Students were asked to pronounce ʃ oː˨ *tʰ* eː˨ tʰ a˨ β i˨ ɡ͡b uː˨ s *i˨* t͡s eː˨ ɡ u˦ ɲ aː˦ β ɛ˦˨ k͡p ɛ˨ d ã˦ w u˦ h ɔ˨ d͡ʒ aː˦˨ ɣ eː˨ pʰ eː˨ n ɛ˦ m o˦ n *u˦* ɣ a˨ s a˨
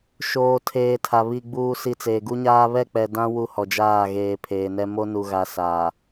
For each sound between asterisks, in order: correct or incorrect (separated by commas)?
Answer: correct, correct, incorrect